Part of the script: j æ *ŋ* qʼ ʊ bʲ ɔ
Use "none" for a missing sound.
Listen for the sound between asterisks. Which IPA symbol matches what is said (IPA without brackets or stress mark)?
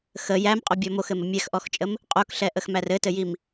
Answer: m